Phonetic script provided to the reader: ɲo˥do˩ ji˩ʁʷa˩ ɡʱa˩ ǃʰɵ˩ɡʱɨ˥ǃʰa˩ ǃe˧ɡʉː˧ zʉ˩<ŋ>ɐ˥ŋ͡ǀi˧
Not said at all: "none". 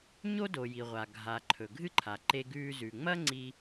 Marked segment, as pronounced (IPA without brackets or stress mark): ŋ͡m